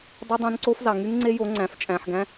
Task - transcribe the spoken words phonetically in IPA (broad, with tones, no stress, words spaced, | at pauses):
dˤy˦˥dˤõ˦˥n ǀo˦˥fzɑ˨˩ ŋy˦˥ŋŋ͡ǀe˦˥jo˩˥ ŋ͡ǀæ̃˨˩ft͡ʃʼæ̃˨˩ħɡæ̃˦˥